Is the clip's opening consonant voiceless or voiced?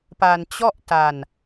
voiceless